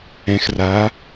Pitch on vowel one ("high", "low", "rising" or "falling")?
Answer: rising